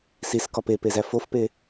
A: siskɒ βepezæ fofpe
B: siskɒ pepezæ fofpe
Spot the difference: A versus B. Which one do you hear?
B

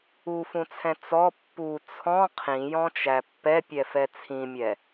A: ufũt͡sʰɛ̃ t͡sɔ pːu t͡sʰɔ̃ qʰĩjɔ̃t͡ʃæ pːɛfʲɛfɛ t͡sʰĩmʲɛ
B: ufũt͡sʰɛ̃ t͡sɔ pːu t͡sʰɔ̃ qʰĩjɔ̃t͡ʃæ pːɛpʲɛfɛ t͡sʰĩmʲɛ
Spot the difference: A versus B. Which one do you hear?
B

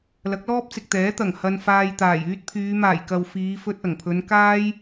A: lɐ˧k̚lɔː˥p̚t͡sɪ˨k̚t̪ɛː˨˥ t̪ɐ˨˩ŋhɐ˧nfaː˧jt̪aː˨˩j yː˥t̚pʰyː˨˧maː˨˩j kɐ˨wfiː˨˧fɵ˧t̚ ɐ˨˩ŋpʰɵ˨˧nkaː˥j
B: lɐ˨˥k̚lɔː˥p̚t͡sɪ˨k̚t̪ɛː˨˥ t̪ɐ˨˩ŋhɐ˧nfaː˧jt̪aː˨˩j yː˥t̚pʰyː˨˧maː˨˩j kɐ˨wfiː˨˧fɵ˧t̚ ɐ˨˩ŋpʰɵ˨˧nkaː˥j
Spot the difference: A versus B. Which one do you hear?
B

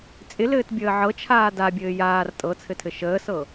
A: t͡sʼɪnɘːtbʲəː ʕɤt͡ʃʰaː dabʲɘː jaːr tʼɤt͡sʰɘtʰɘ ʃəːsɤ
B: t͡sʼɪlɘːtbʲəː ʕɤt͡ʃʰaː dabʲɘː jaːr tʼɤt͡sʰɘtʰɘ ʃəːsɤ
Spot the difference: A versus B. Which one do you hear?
B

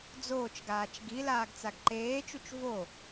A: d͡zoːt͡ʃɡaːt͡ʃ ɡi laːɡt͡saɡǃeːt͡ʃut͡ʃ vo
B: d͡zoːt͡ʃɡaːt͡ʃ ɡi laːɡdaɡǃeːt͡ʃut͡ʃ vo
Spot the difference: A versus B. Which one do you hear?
A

